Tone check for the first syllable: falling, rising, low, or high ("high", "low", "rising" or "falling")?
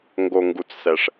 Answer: low